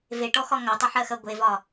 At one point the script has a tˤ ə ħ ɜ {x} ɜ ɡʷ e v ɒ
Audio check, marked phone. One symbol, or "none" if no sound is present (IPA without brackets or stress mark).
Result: x